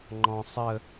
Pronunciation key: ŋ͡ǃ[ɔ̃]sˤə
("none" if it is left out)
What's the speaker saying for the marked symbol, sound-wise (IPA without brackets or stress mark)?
ɔ̃